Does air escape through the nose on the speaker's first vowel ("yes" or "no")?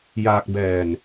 no